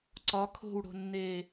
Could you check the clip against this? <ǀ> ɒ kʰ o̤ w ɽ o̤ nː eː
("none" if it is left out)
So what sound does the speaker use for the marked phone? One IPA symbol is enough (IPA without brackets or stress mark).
ǀ